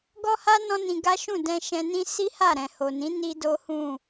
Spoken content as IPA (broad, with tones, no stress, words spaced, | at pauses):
ɡɔ˦ha˦ nɔ̃˦nĩ˧ɡa˦ ʃũ˦˨dɛ̃˧ʃɛ̃˧nĩ˦ si˦ha˦˨ ɾɛ̃˨ ho˨nĩ˨˦ ni˦do˦hũ˦˨